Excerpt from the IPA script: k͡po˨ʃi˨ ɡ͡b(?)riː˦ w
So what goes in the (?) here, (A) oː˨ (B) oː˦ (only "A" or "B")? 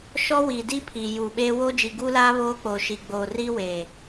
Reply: A